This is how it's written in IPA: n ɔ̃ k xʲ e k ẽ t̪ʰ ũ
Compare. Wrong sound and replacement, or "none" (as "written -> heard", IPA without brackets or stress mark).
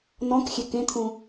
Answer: none